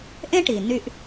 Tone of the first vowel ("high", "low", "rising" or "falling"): high